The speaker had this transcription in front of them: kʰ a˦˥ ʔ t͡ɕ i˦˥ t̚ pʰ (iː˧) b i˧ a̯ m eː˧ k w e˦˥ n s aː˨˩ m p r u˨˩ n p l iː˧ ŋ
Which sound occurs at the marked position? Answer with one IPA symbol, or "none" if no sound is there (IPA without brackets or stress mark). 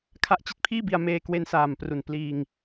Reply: iː˥˩